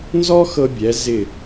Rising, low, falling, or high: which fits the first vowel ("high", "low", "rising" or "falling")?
high